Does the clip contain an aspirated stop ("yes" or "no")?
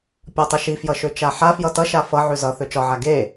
no